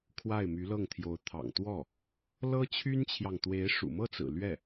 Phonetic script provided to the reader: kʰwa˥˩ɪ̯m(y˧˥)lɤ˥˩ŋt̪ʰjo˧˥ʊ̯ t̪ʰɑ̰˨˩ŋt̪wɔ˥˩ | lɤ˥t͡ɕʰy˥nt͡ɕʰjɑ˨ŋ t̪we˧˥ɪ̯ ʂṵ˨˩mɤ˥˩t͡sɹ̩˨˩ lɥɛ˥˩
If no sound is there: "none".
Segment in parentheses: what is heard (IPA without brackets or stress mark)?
y˧˥